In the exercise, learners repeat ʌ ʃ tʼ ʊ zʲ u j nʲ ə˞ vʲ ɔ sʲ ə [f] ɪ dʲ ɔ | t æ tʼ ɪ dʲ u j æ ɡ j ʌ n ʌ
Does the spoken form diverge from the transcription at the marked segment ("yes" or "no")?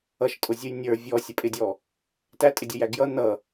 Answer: yes